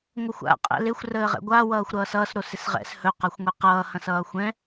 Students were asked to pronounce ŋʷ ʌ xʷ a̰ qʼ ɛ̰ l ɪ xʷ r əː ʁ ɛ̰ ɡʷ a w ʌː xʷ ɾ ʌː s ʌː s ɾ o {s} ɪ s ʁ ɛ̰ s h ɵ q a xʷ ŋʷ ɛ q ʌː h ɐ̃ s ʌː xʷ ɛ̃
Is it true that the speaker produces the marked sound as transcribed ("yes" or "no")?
yes